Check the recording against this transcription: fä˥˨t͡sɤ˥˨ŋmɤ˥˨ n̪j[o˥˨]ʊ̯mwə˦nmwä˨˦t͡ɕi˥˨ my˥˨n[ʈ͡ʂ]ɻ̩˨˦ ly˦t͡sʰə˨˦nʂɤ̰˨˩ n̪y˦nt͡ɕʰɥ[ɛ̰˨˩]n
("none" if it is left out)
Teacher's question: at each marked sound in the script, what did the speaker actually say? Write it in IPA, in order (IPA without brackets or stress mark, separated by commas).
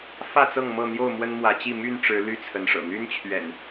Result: o˥˨, ʈ͡ʂ, ɛ̰˨˩